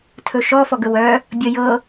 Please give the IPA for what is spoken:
tʰ ɵ ʃ ɔ f ɔ ɡ ɵ w œ | bʲ ə j ɤ

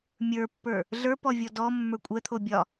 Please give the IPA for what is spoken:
mʲ ə˞ pː ə˞ | ɮ ə˞ p ɔ vʲ ɔ d ɔ mː ə˞ kʷʼ ɛ t̪ʰ o bʲ ɒ

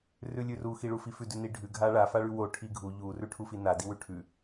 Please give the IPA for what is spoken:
r ʉ lʲ ʉ r u x i ɭ u f i f ʉ d ʉ n i ɖʱ ʉ ɡʱ a ɭ a f a ɭ ʉ w o ʈʰ i ɡʱ u ʎ u r ʉ ʈʰ u f i n a d i w ʉ ʈʰ ʉ

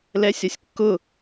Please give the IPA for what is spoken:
l ɛ sʲ ɒ sʲ kː ʊ

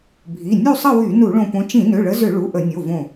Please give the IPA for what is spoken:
bʱ i˩˧˩ nʲ u˥˧ sˤ ə˥˧ w y˧˩˧ n u˧˩˧ ɭ õ˧˩ p õ˨˦ t͡ʃ ĩ˧˩˧ n ø˩˧˩ ɭ ə˨˦ z ʏ˧˩˧ ɭ u˩˧˩ ʔ ə˧˩˧ nʲ o˩˧˩ v õ˧˩

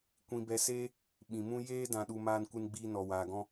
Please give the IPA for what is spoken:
kʷ ĩ˧ b ɛ˧ s eː˦ | ɓ ĩ˨ m ũ˦ j eː˦ d ã˧ ɗ u˧ m aː˦ n kʷ ɨ˦ n ɡ͡b iː˦ n ɔ˧ w aː˧ ɡ ɔ̃˦

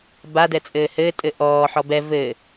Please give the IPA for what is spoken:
b a d ɛ t͡sʼ ɘː h ɘː tʼ ɘ ʔ ɔː ħ ɔ b ɛ v ɘ

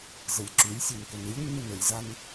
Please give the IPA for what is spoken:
z ɘ lʲ ǁ y lʲ sʲ e n k ɘ n ɨ lʲ nː ɨ n ɘ lʲ z a n

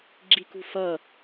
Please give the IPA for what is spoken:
ɡ͡ǁ i k ṳ f ʌ

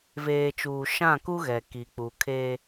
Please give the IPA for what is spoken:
v eː˨ t͡ʃ uː˨ ʃ ã˦˨ k u˦ ɣ ɛ˨ k i˨ k͡p u˨ kʰ e˦

